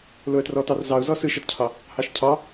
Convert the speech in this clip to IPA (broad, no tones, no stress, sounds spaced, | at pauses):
l o ə̯ t r ɔ t ɑ r z ɑ ʊ̯ z ɔ s ɯ ʃ ɒ t cʰ ɑ | h ɑ ʃ cʰ ɑ